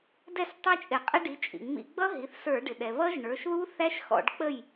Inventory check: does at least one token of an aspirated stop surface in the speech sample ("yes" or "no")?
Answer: no